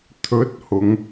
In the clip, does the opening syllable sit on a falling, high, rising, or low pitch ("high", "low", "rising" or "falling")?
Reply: rising